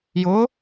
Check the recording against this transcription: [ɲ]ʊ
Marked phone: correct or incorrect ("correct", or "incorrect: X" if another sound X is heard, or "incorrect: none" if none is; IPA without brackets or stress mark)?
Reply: incorrect: j